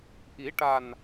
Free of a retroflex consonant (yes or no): no